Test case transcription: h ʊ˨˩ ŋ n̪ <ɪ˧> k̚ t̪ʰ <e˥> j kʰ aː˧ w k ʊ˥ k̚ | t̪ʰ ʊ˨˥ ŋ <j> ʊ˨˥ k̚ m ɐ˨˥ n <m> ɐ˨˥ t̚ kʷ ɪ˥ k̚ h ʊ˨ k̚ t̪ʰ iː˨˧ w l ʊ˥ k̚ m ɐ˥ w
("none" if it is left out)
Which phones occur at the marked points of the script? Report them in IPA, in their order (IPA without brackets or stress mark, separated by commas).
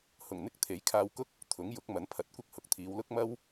ɪ˧, e˨˥, j, pʰ